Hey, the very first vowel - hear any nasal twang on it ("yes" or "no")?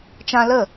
yes